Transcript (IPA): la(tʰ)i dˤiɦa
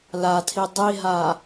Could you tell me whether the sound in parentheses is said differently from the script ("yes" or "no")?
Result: no